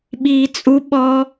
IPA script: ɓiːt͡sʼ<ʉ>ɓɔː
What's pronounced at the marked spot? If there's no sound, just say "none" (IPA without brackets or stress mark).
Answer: u